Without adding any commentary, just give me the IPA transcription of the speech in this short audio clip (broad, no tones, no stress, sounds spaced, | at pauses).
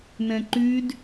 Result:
n ɛ̃ ǃ y d